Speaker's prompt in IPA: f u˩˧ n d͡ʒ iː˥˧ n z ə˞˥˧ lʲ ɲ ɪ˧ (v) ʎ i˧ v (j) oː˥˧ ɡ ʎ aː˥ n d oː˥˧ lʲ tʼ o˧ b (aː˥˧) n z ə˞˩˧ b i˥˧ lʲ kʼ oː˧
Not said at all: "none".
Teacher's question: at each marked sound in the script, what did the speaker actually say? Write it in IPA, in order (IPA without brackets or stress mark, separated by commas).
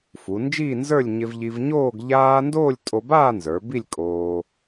v, ɲ, aː˥˧